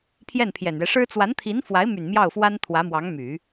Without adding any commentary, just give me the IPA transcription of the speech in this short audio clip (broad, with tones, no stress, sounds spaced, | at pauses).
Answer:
pʰ j ɛ˥˩ n pʰ j ɛ˨˩ n ɥ ɛ˦ ʂ ɻ̩˥ t͡s w a˧˥ n t̪ʰ i˧˥ n f w a˧˥ ɪ̯ m y˨˩ n m j ɑ˥˩ ʊ̯ f w a˥ n t̪ʰ w ä˧˥ m w ɑ˧˥ ŋ m y˨˩˦